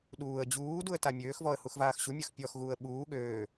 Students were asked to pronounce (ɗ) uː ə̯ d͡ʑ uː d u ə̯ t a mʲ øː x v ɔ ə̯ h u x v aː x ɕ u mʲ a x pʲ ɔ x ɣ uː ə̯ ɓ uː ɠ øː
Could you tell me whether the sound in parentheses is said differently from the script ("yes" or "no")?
no